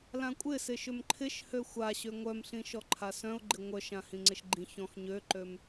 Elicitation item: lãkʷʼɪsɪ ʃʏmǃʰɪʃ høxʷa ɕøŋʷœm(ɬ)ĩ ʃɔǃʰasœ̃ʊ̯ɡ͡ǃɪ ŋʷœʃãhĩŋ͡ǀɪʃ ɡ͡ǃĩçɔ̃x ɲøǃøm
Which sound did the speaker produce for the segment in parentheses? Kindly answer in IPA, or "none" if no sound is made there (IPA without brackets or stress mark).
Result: ɬ